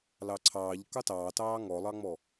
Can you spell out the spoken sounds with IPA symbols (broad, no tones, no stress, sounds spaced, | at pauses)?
l ɑ ǀʰ ɑː ʎ k ɑ t ɑː t ɑː ŋ ɔ lˠ ɑ ŋ͡m ɔ